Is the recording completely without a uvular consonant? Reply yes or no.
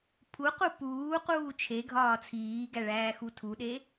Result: no